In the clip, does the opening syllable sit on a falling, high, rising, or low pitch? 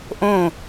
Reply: falling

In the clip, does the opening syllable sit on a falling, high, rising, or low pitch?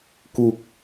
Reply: low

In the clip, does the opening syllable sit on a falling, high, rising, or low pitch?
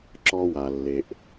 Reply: high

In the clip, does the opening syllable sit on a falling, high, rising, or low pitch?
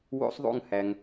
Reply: high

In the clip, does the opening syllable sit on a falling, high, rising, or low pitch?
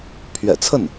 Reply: low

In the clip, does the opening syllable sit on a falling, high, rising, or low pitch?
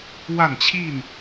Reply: falling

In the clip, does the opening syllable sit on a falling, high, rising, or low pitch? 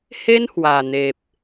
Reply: high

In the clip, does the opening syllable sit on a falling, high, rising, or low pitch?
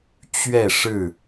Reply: falling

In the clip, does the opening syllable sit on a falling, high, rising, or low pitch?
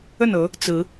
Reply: falling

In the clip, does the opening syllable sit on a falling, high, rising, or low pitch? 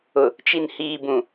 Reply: low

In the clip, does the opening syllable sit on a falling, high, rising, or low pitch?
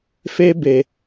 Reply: high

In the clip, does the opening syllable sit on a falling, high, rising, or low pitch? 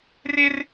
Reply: high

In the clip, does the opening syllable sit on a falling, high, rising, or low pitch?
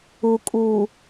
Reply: low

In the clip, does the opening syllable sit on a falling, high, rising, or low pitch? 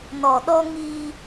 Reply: low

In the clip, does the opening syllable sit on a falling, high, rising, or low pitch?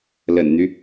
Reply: low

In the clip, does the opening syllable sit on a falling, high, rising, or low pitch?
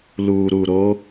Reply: low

